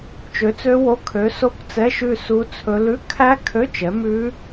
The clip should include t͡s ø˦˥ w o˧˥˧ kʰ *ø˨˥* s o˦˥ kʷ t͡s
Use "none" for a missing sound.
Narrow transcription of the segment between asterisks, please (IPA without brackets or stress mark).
ø˨˥